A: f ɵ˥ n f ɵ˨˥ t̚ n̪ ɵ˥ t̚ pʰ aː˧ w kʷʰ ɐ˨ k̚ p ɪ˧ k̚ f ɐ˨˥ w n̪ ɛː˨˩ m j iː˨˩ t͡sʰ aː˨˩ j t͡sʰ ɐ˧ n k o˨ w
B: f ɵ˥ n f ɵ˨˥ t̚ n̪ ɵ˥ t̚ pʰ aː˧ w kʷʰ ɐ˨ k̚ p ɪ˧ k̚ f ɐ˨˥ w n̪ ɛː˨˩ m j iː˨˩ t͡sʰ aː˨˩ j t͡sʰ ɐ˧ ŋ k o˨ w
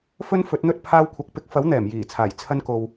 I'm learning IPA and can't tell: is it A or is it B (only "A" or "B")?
A